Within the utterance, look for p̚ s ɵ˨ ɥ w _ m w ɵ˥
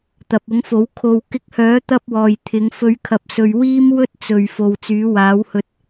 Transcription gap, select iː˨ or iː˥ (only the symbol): iː˥